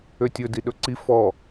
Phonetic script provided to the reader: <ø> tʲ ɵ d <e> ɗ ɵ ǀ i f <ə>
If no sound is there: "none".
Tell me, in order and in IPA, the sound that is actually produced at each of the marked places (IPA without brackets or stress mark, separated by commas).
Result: ø, i, ɔ